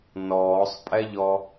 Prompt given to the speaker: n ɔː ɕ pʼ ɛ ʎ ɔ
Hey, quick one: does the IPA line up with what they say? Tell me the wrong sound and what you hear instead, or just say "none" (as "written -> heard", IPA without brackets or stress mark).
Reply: ɕ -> sˤ